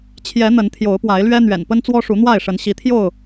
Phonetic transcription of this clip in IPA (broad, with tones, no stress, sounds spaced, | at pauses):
t͡ɕʰ j ɛ˨˦ n̪ ə˨˦ n t̪ʰ j o˨˦ ʊ̯ p w a˨˦ ɪ̯ l ɥ ɛ˦ n̪ ɥ ɛ̰˨˩ n p ə˦ n t͡s w ɔ˦ ʂ u˨˦ n̪ w a˥˨ ɪ̯ ʂ ə˨˦ n ɕ i˨˦ t̪ʰ j o˥˨ ʊ̯